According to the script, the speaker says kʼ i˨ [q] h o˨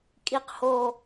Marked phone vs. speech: correct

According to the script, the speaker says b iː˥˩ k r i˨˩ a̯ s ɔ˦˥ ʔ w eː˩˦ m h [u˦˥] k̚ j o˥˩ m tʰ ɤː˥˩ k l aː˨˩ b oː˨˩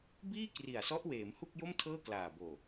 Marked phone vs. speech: incorrect: u˥˩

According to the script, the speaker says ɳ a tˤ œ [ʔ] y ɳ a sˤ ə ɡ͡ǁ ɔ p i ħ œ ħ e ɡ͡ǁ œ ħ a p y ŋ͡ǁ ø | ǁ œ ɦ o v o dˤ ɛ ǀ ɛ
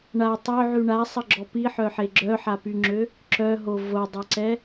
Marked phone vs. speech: incorrect: ʕ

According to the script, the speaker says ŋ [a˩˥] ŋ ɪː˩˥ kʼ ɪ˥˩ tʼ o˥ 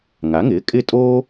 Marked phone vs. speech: correct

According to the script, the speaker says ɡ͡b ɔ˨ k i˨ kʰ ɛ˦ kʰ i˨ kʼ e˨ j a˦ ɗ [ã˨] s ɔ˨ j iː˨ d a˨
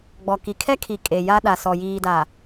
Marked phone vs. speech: incorrect: a˨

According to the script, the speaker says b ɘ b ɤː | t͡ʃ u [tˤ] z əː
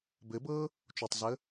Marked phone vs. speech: correct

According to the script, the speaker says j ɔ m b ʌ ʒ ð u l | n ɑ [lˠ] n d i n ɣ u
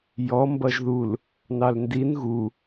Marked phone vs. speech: incorrect: l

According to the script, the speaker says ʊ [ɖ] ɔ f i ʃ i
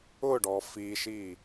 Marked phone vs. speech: correct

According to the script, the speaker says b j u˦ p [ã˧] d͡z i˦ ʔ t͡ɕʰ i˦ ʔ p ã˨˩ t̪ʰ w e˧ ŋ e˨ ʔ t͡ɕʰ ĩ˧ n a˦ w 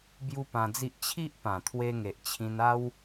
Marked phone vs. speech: correct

